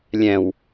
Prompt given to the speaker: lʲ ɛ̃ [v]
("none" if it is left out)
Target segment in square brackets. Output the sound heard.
w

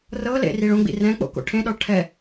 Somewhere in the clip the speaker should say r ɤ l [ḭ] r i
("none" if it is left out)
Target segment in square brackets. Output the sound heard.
ḛ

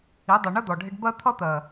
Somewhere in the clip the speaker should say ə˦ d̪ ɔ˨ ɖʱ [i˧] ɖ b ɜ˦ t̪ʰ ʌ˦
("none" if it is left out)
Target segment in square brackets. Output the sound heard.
ɪ˧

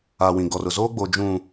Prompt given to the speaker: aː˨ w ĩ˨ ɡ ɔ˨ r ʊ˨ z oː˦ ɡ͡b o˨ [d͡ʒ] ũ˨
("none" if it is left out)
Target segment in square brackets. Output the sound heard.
d͡ʒ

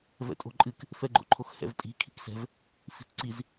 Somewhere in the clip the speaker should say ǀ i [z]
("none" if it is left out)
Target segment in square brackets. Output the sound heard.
z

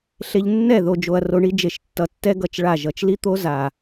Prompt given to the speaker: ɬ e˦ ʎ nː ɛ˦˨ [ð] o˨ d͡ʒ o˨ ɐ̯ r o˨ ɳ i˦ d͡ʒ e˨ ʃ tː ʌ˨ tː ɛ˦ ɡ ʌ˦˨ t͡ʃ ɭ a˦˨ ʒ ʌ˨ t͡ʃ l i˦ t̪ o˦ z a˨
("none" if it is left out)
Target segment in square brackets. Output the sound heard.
ð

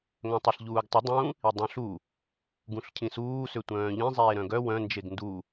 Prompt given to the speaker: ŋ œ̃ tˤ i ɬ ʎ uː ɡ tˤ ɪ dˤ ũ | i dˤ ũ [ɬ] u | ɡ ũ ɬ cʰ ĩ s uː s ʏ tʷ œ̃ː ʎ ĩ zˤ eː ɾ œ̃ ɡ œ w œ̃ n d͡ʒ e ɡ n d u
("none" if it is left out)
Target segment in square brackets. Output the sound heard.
ɬ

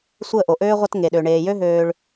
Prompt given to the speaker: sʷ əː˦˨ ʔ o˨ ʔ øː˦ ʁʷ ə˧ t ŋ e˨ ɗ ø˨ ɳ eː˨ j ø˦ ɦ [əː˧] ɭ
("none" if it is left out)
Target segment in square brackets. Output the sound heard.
øː˧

